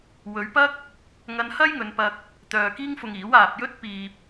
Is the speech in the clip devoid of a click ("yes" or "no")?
yes